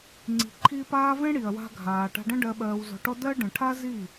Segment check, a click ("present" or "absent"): present